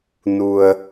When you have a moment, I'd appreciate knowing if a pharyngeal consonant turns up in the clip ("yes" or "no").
no